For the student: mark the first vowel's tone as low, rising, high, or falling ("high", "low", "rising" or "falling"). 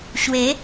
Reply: rising